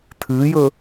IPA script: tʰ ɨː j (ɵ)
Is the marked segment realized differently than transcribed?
no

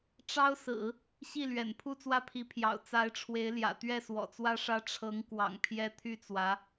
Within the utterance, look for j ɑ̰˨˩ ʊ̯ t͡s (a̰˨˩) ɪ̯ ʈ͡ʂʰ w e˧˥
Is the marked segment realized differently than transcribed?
yes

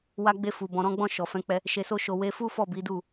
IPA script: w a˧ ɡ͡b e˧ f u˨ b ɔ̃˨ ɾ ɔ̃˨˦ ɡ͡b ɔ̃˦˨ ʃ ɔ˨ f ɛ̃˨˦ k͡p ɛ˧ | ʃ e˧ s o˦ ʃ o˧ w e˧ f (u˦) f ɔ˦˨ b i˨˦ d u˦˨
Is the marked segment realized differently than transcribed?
no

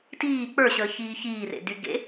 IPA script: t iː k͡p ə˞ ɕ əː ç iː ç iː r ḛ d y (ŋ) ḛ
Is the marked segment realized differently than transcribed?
yes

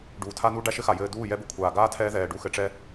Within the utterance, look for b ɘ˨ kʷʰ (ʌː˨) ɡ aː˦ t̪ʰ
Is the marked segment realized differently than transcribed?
yes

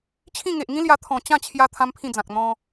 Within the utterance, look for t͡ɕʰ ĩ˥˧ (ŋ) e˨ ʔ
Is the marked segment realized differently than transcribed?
no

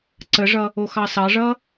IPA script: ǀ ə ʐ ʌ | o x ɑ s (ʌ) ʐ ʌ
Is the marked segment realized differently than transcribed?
yes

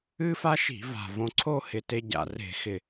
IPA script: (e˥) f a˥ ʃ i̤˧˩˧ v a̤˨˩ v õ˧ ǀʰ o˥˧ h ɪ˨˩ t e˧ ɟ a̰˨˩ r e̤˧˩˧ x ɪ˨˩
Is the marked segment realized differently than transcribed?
yes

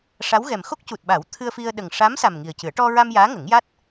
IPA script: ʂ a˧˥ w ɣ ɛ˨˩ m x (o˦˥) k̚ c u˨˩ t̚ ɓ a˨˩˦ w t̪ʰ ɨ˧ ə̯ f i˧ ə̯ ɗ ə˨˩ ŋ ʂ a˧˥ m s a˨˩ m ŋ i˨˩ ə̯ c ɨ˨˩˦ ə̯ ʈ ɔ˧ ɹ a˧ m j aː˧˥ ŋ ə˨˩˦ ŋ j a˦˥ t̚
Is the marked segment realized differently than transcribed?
no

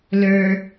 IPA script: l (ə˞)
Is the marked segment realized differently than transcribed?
no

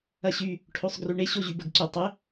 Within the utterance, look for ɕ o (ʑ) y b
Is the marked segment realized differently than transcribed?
no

